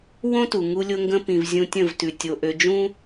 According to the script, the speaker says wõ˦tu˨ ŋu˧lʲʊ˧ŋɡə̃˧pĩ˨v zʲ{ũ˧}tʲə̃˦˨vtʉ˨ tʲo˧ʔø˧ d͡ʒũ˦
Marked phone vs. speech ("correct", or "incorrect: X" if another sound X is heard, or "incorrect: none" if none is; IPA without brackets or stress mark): correct